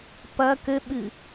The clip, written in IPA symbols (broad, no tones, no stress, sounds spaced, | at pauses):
p ɐ k ɘ ɓ ɨ